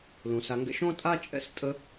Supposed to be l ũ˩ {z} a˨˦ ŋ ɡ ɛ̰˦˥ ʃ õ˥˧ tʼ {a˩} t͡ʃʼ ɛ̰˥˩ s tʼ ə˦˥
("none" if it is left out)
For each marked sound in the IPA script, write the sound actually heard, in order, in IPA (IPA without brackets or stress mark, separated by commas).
s, a˥˧